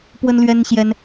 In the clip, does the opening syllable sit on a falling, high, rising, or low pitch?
high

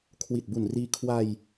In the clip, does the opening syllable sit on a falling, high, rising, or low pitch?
low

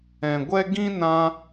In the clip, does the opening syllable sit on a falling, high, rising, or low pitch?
low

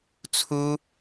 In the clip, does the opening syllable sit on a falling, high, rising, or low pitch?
high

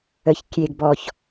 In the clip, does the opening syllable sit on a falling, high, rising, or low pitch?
high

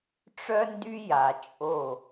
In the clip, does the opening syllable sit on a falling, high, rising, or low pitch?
high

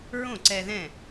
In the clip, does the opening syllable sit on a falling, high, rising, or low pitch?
falling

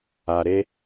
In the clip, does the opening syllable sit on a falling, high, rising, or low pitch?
low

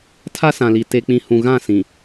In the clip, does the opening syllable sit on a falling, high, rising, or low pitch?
high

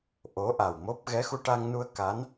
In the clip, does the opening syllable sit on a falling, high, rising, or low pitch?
rising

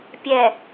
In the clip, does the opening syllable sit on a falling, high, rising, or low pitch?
low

